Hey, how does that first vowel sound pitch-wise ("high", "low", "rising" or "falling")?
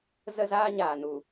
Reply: high